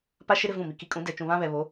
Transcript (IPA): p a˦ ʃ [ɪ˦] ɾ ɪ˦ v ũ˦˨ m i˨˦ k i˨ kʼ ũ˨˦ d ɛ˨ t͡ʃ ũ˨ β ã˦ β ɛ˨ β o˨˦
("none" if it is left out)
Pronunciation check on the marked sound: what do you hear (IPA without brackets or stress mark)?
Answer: ɪ˦